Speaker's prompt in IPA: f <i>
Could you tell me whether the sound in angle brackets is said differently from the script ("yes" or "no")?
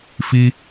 no